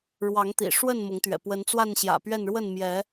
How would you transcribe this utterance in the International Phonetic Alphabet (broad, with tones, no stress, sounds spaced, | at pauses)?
ɻ w ɑ˨˦ ŋ t̪ ḭ˨˩ ʂ w ə˥˨ n m ʊ˨˦ ŋ t̪ ɥ ɛ̰˨˩ p w ə˨˦ n t͡s w a˥˨ n ɕ j ä̰˨˩ p ɥ ɛ˥˨ n ɻ w ə˥˨ n m j ɛ˨˦